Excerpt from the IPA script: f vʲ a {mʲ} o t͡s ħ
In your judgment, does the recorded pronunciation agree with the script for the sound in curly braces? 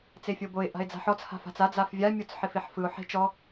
yes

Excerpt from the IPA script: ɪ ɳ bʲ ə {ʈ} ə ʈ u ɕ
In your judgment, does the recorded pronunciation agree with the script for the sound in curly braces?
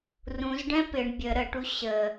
no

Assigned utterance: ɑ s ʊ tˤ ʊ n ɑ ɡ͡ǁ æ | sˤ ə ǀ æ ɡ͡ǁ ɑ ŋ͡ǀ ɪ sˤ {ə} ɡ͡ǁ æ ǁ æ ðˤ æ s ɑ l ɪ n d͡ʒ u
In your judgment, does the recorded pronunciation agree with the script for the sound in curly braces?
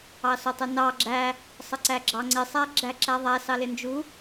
no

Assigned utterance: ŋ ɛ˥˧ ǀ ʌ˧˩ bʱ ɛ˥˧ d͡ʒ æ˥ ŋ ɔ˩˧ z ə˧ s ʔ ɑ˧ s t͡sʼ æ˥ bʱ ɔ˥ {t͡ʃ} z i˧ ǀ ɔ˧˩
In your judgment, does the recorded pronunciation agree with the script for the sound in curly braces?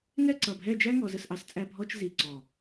yes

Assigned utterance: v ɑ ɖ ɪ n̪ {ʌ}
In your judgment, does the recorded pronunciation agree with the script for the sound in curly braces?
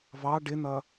yes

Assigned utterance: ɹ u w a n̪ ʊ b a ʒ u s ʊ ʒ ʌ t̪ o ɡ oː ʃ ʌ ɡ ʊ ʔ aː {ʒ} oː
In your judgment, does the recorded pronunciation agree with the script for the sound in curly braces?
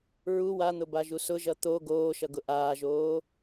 yes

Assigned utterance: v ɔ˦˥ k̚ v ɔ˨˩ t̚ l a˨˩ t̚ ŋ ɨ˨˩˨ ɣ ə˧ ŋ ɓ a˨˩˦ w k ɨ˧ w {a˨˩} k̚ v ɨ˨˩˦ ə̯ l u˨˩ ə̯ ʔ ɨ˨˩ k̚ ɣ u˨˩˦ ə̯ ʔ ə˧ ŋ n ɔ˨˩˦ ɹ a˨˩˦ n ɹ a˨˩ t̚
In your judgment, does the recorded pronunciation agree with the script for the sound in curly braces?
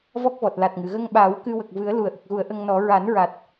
no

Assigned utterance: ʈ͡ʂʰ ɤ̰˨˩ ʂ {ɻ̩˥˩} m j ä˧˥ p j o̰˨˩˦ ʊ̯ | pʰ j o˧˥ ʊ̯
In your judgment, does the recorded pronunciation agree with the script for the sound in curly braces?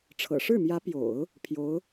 yes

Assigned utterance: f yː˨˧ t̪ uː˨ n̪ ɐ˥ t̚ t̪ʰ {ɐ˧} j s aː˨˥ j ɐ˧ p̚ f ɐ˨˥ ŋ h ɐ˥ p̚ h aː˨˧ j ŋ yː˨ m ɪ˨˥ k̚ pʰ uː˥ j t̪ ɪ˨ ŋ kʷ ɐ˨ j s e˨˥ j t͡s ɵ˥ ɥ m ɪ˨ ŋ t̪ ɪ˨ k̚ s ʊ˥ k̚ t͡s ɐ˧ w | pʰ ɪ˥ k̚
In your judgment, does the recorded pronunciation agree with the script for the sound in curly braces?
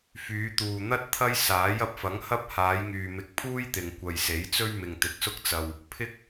no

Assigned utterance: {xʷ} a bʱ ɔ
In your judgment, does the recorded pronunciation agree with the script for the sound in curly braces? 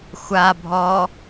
yes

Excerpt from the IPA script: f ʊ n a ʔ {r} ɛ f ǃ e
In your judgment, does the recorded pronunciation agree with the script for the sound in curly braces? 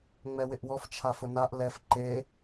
no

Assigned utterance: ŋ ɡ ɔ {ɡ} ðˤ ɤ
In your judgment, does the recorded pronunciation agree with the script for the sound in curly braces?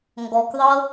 no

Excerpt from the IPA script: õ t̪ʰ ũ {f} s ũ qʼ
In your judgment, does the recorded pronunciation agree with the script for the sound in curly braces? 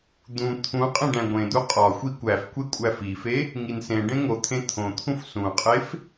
yes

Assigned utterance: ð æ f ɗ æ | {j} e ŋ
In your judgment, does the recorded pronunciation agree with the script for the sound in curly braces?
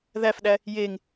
yes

